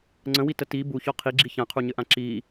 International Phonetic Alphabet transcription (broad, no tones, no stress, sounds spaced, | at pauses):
ŋ͡ǀ ə̃ w i t ə t i b u ç ɔ qʰ i ɡ͡ǁ i ç ã qʰ u ɲ ɘ ʔ ã ǁ i